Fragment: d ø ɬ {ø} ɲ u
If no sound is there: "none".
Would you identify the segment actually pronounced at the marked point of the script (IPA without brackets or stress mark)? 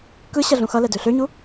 ø